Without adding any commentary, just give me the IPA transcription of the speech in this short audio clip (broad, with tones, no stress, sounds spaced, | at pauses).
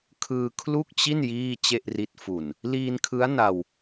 kʰ ɯː˧ kʰ l u˥˩ k̚ t͡ɕ i˥˩ n j iː˥˩ t͡ɕ e˥˩ ʔ r i˦˥ t̚ f u˨˩ n | l iː˧ n kʰ ɯ˦˥ a̯ n a˧ w